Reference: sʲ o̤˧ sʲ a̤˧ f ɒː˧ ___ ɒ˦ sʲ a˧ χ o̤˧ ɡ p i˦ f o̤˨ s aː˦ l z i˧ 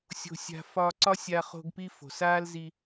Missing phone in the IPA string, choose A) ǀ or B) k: A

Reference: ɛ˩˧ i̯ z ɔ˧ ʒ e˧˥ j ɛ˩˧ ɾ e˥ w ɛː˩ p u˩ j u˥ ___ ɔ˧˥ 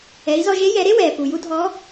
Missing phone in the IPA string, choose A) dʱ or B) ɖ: A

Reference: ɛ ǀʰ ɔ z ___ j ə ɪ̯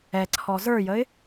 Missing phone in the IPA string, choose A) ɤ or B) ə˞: B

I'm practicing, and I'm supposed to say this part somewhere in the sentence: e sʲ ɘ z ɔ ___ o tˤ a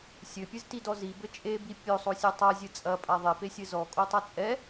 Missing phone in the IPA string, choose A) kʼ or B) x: A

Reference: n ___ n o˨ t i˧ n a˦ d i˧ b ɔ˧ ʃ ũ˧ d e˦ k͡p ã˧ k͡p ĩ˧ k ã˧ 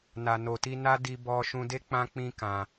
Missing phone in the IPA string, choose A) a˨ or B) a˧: A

